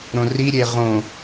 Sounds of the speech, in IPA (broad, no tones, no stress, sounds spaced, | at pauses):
ɾ õ r i ɾʲ e ʁ õ